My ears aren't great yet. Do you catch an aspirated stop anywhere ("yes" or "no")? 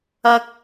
no